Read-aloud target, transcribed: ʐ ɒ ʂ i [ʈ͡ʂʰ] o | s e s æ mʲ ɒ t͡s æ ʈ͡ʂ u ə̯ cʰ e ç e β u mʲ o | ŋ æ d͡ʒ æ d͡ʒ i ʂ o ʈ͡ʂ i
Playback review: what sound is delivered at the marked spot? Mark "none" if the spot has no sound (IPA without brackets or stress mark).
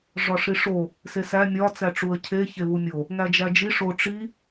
ʂ